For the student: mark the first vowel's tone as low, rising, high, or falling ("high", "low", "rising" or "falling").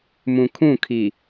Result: low